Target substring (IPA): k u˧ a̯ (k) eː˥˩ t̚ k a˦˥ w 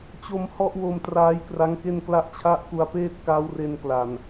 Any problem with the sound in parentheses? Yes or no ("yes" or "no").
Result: yes